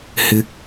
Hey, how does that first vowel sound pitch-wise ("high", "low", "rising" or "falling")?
low